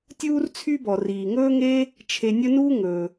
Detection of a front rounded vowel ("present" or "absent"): present